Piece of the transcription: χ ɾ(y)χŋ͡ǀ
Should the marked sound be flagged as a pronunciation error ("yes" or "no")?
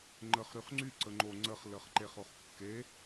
no